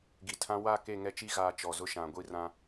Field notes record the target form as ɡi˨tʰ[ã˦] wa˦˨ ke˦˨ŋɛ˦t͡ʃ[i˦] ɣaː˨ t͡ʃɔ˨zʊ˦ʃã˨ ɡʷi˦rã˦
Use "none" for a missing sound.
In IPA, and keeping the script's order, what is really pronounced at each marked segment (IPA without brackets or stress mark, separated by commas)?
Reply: ã˦, i˦